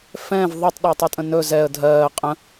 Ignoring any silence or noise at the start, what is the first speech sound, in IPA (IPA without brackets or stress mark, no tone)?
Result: f